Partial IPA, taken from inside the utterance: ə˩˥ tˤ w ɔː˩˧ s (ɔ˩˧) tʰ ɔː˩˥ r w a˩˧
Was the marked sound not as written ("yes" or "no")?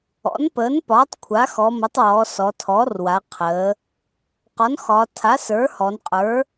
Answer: no